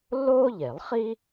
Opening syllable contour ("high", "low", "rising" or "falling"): high